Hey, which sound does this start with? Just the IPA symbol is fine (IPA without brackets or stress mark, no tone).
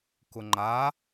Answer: k